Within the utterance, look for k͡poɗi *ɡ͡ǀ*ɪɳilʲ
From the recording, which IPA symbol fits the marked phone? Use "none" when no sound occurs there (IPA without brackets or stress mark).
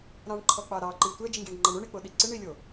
ǀ